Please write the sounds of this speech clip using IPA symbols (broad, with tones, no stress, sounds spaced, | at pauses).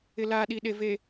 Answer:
ɪ˨ l aː˨ ɗ i˨ ɗ e˨ v e˨